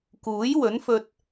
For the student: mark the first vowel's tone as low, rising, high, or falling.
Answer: rising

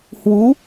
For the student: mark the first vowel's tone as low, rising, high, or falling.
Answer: rising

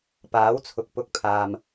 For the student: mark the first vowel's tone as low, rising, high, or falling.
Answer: rising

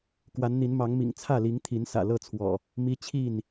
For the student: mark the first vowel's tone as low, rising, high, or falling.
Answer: rising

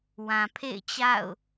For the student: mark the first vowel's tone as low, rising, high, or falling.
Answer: low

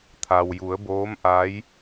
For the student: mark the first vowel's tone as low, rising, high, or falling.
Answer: low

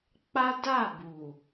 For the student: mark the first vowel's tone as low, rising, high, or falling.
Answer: high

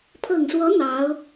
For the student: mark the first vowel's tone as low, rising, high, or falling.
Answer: low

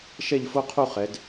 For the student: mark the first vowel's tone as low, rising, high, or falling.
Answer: falling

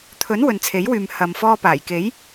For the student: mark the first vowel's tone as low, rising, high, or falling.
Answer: rising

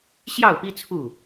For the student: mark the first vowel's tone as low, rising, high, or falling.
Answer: falling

